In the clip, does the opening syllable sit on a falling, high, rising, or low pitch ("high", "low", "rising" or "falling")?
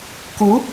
rising